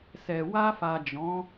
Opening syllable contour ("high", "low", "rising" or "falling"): low